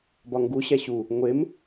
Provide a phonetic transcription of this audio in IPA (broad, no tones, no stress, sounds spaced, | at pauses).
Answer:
b ɒ ŋ ɡ u ɕ æ ɕ u | ŋʷ e m